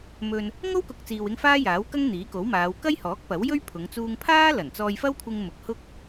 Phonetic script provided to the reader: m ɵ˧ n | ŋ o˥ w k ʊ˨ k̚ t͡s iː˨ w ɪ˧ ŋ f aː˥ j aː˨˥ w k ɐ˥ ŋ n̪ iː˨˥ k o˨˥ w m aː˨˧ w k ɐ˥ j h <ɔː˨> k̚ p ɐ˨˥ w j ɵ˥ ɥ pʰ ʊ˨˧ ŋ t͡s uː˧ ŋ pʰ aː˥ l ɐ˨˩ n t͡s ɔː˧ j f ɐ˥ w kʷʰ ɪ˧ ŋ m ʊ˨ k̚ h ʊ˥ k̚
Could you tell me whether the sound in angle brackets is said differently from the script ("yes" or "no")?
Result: yes